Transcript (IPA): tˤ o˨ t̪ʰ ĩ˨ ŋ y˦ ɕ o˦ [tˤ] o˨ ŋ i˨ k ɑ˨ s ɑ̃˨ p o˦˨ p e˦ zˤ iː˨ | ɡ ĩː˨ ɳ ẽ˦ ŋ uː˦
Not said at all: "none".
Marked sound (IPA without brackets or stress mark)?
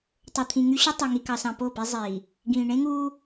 tˤ